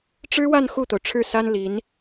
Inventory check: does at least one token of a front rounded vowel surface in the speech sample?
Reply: no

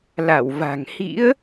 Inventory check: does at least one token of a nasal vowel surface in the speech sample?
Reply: no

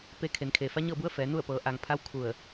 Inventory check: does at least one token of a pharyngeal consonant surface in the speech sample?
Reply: no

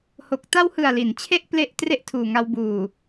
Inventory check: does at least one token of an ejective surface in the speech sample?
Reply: no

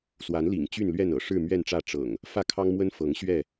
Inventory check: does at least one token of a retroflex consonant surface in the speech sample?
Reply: yes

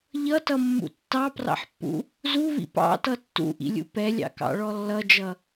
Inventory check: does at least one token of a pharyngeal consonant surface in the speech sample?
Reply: yes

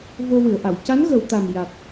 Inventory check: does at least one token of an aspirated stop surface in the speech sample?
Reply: no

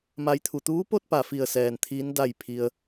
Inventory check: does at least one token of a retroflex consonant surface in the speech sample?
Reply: no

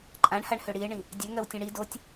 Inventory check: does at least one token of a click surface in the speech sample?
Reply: yes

